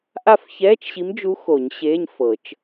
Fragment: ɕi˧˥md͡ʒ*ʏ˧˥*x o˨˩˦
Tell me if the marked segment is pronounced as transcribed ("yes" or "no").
no